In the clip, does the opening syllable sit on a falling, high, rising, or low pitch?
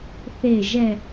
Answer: low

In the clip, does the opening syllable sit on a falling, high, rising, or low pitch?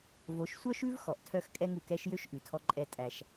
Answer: rising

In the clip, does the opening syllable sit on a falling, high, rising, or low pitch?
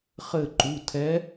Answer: falling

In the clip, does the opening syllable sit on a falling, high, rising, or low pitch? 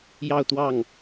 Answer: falling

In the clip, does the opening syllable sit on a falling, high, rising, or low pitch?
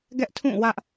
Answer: high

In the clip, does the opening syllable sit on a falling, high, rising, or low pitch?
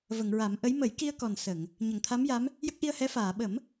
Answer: low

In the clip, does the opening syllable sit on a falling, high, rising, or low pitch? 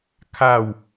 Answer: falling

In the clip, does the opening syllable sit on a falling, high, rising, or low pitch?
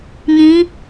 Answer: rising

